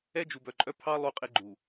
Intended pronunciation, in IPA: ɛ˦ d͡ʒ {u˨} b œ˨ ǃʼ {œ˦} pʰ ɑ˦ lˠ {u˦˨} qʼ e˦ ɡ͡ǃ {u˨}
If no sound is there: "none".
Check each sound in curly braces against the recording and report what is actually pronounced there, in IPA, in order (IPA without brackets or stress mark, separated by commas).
u˨, œ˦, u˦˨, u˨